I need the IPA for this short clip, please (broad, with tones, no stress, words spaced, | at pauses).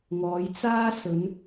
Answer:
ŋɔː˨˧jt͡saː˥ sɵ˨˧n